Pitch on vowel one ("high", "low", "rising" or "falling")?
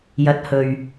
rising